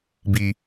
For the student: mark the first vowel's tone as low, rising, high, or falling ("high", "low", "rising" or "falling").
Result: high